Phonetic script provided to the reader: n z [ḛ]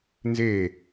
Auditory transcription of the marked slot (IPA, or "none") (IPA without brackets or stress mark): e